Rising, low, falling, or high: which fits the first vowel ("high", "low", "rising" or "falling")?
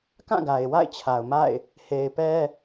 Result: falling